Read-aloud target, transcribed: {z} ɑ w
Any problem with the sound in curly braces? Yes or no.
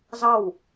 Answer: no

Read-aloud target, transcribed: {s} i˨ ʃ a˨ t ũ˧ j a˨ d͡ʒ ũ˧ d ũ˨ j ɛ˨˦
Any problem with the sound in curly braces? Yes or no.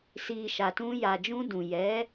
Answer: no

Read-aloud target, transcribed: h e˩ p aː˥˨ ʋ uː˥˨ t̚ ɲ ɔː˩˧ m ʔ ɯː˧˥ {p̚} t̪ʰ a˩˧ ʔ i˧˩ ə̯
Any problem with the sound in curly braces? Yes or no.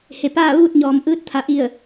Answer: yes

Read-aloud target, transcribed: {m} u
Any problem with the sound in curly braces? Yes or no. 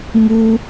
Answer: no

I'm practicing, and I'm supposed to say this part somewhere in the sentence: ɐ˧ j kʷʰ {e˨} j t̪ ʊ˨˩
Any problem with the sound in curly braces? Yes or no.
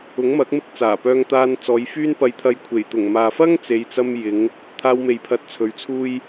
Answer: yes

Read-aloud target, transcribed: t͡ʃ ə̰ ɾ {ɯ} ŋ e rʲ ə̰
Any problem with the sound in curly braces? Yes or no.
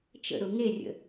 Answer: yes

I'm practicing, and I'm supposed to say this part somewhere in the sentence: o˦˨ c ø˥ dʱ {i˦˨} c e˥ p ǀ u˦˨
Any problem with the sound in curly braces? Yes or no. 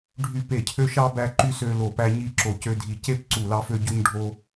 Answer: no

